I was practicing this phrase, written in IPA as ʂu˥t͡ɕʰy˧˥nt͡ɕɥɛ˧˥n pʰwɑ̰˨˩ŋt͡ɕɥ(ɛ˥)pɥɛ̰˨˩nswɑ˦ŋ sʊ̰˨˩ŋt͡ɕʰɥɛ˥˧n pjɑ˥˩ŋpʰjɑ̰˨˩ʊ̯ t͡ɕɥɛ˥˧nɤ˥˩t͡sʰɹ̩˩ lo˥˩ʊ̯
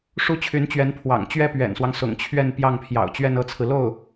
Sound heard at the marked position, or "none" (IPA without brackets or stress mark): ɛ˥